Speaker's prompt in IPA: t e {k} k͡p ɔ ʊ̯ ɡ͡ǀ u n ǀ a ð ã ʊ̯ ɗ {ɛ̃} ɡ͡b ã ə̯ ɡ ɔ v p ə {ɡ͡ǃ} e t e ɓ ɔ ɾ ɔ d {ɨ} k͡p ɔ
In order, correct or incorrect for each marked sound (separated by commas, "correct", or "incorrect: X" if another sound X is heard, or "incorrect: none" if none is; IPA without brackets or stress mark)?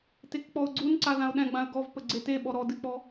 correct, correct, incorrect: ɡ͡ǀ, correct